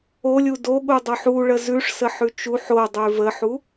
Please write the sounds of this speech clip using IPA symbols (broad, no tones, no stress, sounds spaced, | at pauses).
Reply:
o lʲ u d o ɠ u dˤ o ħ u ɭ ə z ʉ ʂ s ə ħ ʉ t͡ʃ u ħ o dˤ ʉ v ə ħ u